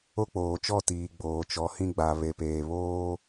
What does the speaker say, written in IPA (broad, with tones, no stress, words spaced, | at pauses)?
o˦k͡poː˨t͡ʃɔ˦˨tiː˨ ɡ͡boː˨t͡ʃɔ˨˦hĩ˦ ɡ͡ba˨βe˨peː˨ βoː˦